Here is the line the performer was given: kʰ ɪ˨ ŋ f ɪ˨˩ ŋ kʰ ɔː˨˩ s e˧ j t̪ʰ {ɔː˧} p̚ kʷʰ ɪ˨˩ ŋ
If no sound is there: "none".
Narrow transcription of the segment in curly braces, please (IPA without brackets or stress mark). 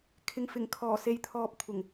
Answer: ɔː˧